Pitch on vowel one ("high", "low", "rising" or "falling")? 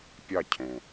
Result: falling